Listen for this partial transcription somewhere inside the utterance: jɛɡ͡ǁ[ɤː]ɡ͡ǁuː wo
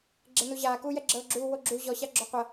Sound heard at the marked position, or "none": ɤː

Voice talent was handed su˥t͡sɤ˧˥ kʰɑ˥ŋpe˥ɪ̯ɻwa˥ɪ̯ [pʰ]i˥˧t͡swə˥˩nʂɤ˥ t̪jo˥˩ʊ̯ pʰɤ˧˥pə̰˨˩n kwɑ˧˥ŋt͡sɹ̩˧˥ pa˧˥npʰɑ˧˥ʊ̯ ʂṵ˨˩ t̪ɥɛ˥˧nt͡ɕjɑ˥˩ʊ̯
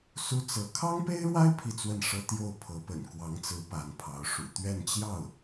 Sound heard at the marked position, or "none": pʰ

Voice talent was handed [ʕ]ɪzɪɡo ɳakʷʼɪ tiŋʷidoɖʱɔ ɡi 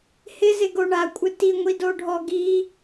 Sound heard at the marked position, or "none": h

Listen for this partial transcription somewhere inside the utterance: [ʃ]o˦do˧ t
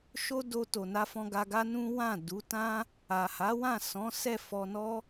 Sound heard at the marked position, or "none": ʃ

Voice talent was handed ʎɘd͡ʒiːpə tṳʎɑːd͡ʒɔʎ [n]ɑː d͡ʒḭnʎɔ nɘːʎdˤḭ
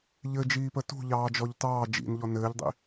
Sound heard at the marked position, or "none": t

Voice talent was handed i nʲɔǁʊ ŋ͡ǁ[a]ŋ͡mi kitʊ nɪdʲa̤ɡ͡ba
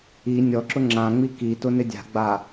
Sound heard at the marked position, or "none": ã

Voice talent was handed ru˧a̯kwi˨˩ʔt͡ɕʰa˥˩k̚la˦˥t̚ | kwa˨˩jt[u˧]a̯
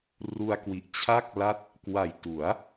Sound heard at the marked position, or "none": u˩˦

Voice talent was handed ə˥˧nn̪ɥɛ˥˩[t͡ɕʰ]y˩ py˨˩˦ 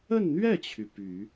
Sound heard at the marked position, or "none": t͡ɕʰ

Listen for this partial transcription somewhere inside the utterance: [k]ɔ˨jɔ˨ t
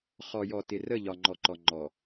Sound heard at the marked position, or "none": χ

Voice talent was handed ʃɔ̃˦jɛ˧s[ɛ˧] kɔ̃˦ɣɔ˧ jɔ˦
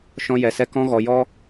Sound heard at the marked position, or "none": ɛ˦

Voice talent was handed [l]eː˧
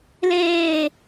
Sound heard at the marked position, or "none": l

